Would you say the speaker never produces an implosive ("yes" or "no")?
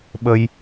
no